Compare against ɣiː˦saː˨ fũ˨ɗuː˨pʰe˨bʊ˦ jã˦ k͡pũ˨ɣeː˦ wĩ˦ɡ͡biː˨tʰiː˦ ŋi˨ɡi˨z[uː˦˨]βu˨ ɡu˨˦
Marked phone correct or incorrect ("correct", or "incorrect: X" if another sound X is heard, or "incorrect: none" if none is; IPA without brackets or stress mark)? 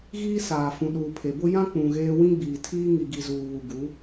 incorrect: uː˨